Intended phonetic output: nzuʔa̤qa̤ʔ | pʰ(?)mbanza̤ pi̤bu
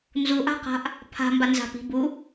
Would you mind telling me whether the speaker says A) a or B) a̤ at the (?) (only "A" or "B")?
B